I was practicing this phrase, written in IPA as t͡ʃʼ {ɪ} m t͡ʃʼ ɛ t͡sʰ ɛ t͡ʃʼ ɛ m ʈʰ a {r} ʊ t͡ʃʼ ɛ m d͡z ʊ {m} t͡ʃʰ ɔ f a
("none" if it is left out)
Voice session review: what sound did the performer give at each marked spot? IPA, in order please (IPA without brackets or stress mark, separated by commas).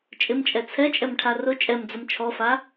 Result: ɪ, r, m